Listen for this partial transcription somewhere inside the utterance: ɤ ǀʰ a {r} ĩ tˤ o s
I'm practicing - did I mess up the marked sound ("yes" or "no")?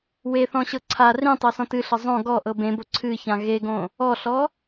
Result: no